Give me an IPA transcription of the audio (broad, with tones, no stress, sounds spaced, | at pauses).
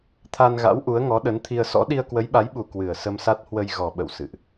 t̪ʰ a˧ n ɣ a̰˧˥ w ʔ u˨˦ ə̯ ŋ ɔ˨˦ ɗ ə˨˦ n t̪ʰ i˧ ə̯ s ɔ̰˧˥ ɗ i˧ ə̯ k w ə˨˦ j ɓ a˨˦ j ɓ u˨˩ k w ɨ˨˩ ə̯ s ə˧ m s a˦˥ t̚ h w ə˧ j ɣ ɔ˨˩ ɓ ə̰˧˨ w s ɨ̰˧˨ ʔ